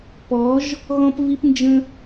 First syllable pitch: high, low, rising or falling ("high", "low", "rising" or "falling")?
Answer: rising